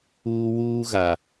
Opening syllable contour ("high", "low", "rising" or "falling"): high